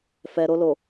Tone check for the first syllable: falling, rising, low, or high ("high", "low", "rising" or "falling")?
low